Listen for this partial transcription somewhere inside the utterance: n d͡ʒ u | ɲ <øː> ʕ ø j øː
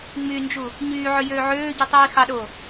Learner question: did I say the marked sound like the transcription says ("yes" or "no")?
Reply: no